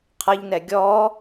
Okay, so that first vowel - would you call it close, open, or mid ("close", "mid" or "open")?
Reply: mid